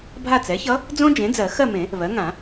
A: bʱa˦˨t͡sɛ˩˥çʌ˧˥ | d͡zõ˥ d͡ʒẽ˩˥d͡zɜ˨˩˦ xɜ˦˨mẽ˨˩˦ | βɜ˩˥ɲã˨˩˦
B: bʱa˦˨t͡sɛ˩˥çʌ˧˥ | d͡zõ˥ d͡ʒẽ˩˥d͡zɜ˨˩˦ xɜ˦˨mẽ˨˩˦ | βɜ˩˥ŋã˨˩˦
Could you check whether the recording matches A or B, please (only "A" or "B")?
B